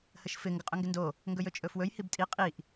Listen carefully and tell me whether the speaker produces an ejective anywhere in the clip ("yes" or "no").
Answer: yes